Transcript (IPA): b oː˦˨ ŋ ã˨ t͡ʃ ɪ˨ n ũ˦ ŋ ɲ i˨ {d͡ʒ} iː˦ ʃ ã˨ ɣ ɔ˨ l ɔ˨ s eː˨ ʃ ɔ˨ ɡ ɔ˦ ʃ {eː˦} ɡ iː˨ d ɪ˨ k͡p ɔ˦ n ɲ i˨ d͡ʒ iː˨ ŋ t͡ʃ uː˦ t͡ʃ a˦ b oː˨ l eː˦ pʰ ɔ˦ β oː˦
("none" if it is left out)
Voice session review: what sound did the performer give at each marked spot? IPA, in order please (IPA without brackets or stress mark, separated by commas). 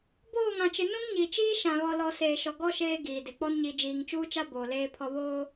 t͡ʃ, eː˦